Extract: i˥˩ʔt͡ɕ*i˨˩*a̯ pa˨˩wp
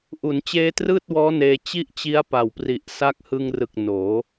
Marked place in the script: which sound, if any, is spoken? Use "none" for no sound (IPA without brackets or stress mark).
i˦˥